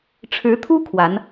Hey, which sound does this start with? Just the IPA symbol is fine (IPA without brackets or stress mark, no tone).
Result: ʈ͡ʂʰ